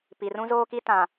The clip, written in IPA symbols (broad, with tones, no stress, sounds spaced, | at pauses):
p i˨ r ũ˦ z oː˦ k i˦ t ã˨